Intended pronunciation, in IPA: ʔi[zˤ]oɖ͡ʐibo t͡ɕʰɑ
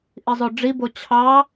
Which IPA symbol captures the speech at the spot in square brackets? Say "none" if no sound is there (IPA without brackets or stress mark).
zˤ